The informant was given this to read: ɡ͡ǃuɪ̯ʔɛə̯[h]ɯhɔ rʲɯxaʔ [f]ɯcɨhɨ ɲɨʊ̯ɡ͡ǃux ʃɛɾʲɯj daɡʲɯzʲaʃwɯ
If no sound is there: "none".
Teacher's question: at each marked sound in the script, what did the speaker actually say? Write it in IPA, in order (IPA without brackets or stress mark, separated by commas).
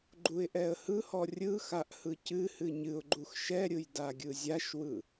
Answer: h, h